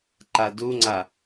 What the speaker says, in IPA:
ǃ a d u ŋ͡ǀ a

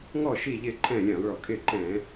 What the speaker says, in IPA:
ŋ ɔ˦˨ ʃ iː˦˨ ʎ ɪː˦˨ ǃʰ ɛ̃ː˦˨ lʲ ɛ̃ː˧˩˧ lˠ ɭ ɔ˧˩˧ kʼ ɪː˦˨ ǃ ɛ̃ː˧˩˧

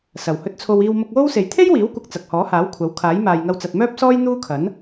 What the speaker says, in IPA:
s ɐ˨˩ w h ɵ˧ t̚ t͡sʰ o˧ w iː˧ w m ʊ˧ k̚ w o˥ w s e˨ j t̪ʰ e˥ j w iː˨˥ w kʷ ɐ˨ k̚ t͡s ɐ˨ k̚ h ɔː˨˥ h aː˨˥ w kʷʰ ɐ˨˥ w kʰ aː˨˥ j m aː˨ j ŋ ɐ˧ w t͡s ɐ˨ t̚ m œː˥ p̚ s ɔː˥ j n̪ uː˥ kʰ ɐ˨˥ n

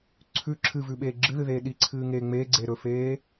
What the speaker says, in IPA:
ǀʰ ʉ ǁʰ ɨ v ʉ ɓ eː ɡ͡ǁ ɨ ð ɨ ð eː ɗ i ǀʰ ɨː ŋ eː ŋ͡m eː ɡ͡ǀ eː ɾ ɵ f eː

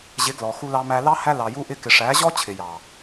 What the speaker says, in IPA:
ʑ ɪ˨˦ ɡ l ɔ˨ x u˧ l ɑ˧ m æ˧ l ɑ˦ h æ˦ l ɑ˧ j u˦ ʔ ɪ˦ k ɪ˧ ʂ æ˨˦ ʑ ɔ˦ t͡ɕʰ ɪ˨ j ɑ˨

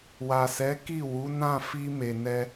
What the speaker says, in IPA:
w a˨ s ɛ˨˦ k i˦˨ w u˨˦ n ã˦˨ f i˧ m e˨ n ɛ˧

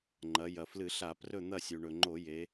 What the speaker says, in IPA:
ŋ͡ǃ ɐ˩˧ j ɐ˩ f l ɨ˧˩˧ ɬ a˧˩˧ p r ɵ˥˨ n̪ ɐ˥˨ sʲ u˩ ɳ ɵ˩ ŋ͡ǃ o˧˩˧ j e˩˧

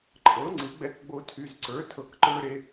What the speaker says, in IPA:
ǃʼ ɤ˩˥ ŋ͡ǀ ɯ˩˥ ɡ͡b ɛ˧ k ɡ͡b o˧ tʰ y˩˧˩ z ǀ ə˞˩˥ tʰ ɤ˧˩ k ǃ ə˞˧ ɾ e˧

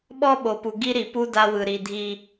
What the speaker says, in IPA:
ɓ ɔ˦ ɓ o˨ p u˨ ɡ i˦ ɾ i˨ p u˦ d a˦ w ɯ˨ ɾ i˨ dʱ i˨

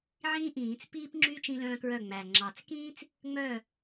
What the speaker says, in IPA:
ʕ ĩː˥ ʔ ĩː˨˩˦ t͡s p iː˥ p ŋ͡ǁ y˥ t͡ʃ ĩ˥ l œ̃ː˥ k ɹ œ˥˩ ŋ͡m æ˨˩ ŋ͡ǁ ɑ˨˩ t͡s k ĩː˥ t͡s | ŋ͡m œ˥˩

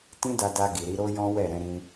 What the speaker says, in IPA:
t ĩ˦ d a˧ d a˧ ɡ i˨ ɾ i˧ ɾ o˦ j ɔ̃˦ w ɛ˦˨ ɾ ɛ̃˨˦ ɾ ĩ˧

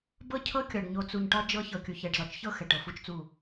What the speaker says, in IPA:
b ɤ˦ cʰ ɤ˦ kʲ ɒ˨ ɖ ɲ o˨ t͡s u˨ ɲ ʈ ɒ˦ d͡ʒ ɤ˦ ç ɤ˨ kʲ u˨ ç ɛ˨ ɖ z ɒ˨ t͡ʃ ç ɤ˦ x ɛ˨ ʈ ɤ˨ f u˦ t͡ʃ t͡s u˦˨

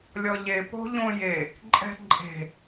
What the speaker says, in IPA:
lʲ ɔ ʎ e p o̤ ʎ õ j e | ǃʼ ɛ̤ ǃʼ e̤

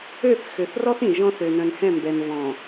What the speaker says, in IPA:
ø˦˨ θ x ø˨ θ r ɔ˦ θ ĩ˨ ʒ ɔ̃˦ θ ø˨ n œ̃˨ n h ɛ̃˦˨ m b ɛ˨ n v ɔ̃˨

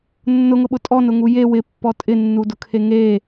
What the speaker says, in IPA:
nː ʊ ŋ ʊ ɓ ʊ tʼ ɔ n ʊ ŋ u j e w ɪ pː ɔ tʼ ɪ nː u d ʊ kʰ e ŋ e

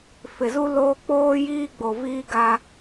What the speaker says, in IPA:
f ɪ˨ z u˦ l oː˦ k͡p oː˦ j iː˦ ɡ͡b o˨ v iː˦ ɡ a˦

